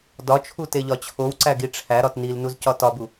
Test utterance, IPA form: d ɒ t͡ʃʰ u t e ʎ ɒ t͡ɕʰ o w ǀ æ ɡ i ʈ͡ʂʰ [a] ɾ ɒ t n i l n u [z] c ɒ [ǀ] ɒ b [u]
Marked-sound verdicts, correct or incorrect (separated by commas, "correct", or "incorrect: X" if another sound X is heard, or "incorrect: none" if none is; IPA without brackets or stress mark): incorrect: æ, correct, incorrect: t, correct